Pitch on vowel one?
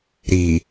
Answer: low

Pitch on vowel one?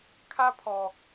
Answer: high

